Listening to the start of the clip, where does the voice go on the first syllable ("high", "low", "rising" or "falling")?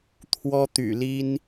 high